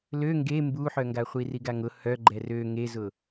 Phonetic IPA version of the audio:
l ø ŋ ɡ e m b u ħ œ ŋ ɡ a χʷ i r i ɡ a ŋ ʊ h œ ɡ͡ǃ ɛ r ø ŋ e z ʊ

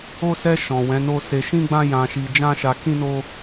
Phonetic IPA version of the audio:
o˧ s ɛ˧ ʃ ɔ̃˨ w ɛ̃˨˦ n o˦ s e˧ ʃ ĩ˦ ɡ͡b ã˦ j ã˧ ʃ i˧ d͡ʒ ã˦ ʃ a˧ k ĩ˦ n o˦

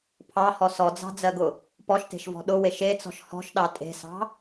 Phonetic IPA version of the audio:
pʰ ɑ h ɔ s ɔ d͡z ɑ̤ d͡z ɜ ɡ ʊ | p ɔ ʃ t e̤ ʃ v ɔ̤ ɗ ʊ w e ʃ e t͡s ɔ̤ ʃ h ɔ̤ ʃ ɗ ɑ tʼ e̤ s ɑ̤

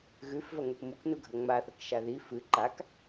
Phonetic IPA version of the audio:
ɣ ʉ f v ɐ ŋ ɵ k m u k n u ɡʱ ɐ ŋ͡m a θ ɐ k ʃ a ð i f ɨ ǃ a k

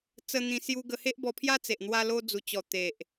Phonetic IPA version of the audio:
t͡s ə˧ n̪ ĩ˧ s j u˧ ɡ ə˧ h e˦ ʔ b ɔ˧ pʰ j a˦ t͡s e˨ ʔ n̪ w a˧ l o˧ d͡z u˨˩ t͡ɕ ɔ˨˩ t̪ e˨ ʔ

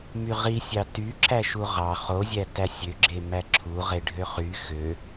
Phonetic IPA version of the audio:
m y ʁ i sʲ ɑ t y ǁ æ ʃ u ʁ ɑ χ o zʲ æ t æ sʲ ø ɡ͡ǁ e m æ ǁʰ u ʁ e ɖʱ ø χ y x ø

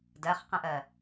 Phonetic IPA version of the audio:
d ɜ χ q ə̃ ʔ ɜ

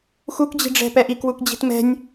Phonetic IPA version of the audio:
x u k d͡ʑ i̤ ɖ͡ʐ ɛ̤ p ɛ ʔ i k w u k d͡ʑ i̤ t m ɛ̤ nʲ

